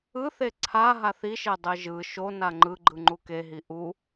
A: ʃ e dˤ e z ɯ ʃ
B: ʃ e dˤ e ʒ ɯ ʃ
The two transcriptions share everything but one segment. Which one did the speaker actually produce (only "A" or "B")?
B